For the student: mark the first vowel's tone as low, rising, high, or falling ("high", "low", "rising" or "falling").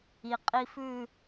low